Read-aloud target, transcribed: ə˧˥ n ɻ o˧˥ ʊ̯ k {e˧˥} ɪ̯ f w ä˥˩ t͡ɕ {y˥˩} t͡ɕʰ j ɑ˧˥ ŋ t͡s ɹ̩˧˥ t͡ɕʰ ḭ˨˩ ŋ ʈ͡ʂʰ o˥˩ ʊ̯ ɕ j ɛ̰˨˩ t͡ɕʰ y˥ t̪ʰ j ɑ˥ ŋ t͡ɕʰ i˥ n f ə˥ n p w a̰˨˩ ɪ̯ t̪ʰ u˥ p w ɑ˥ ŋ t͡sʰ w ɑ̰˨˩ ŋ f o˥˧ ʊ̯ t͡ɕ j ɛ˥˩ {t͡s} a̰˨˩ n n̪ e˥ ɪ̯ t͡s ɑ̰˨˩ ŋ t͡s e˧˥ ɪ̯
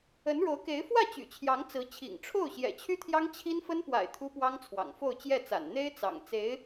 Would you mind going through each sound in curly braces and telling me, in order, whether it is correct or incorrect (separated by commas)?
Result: correct, incorrect, correct